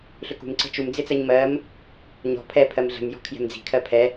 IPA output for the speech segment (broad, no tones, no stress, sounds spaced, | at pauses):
ɬ ʏ k ṳ m ǀ ə̤ t͡ʃ u m d͡z ɪ t͡s ɜ ɲ m ɜ m | ɲ ɔ̤ pʰ ɛ pʰ ɜ m ɮ ə̤ m j ɔ̤ kʰ j ɛ̤ m d͡z i̤ kʰ ɜ pʰ ɛ